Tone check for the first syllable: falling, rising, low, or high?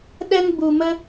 high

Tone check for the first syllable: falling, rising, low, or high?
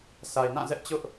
low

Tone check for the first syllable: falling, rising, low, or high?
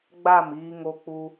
falling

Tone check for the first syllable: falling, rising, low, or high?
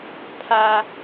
high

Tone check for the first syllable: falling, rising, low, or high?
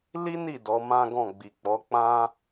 high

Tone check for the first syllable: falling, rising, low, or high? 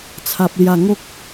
low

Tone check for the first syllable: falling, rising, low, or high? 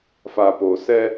low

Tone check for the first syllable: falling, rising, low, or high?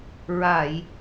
low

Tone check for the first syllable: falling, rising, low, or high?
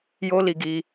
high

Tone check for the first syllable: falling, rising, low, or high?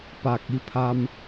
low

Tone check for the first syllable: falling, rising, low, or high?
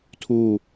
falling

